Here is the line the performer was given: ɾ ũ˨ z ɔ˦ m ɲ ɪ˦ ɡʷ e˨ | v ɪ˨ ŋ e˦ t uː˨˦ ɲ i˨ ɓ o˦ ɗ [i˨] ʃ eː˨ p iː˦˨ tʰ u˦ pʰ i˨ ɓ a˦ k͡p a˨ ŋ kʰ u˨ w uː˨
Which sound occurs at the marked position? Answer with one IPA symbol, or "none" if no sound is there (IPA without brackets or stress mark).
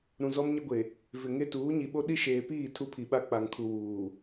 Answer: i˦